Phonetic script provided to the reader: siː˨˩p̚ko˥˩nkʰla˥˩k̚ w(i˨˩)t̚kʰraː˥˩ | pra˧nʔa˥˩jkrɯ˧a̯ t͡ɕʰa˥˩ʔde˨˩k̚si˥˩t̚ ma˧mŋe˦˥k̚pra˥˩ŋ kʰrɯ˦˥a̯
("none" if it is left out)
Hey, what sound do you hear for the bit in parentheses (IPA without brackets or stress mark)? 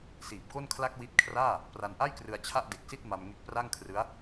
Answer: i˦˥